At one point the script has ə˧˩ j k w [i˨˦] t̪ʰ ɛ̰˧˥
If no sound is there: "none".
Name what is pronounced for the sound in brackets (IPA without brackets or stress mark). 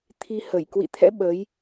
ḭ˧˨